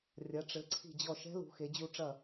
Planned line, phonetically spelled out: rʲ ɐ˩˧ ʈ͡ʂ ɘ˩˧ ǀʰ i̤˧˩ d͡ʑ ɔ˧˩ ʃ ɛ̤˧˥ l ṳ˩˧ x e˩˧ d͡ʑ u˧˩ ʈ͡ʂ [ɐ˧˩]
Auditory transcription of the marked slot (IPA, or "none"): ɐ˧˩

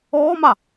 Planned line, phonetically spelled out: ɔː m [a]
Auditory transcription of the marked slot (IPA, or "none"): a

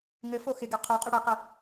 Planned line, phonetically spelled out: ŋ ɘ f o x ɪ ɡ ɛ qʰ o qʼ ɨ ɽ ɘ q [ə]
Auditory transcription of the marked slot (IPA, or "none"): ə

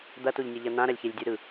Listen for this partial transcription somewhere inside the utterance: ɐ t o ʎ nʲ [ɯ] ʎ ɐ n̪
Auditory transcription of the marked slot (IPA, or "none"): ɯ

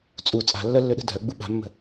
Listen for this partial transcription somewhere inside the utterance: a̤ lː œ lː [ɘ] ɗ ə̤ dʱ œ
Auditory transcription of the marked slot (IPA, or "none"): ø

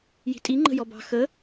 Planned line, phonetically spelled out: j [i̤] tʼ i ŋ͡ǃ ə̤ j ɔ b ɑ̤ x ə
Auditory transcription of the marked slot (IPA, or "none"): i̤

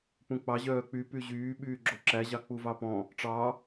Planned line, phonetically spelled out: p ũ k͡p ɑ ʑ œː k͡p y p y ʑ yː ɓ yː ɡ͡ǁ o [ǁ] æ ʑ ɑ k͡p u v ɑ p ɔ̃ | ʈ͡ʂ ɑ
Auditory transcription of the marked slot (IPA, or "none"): ǁ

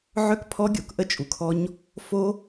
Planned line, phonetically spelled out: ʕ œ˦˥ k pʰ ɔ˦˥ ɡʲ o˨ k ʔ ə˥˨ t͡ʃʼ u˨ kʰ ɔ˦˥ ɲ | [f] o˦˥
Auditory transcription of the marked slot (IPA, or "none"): f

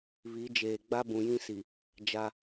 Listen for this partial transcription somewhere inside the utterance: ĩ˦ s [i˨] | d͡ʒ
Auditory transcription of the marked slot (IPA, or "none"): i˨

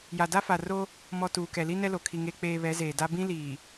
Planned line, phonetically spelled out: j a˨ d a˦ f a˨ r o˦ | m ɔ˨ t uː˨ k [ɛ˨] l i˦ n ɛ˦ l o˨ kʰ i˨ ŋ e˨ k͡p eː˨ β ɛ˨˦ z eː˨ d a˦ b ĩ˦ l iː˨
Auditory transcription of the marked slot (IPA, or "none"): ɛ˨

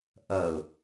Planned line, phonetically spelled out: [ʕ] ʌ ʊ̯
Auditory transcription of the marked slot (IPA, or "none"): ʔ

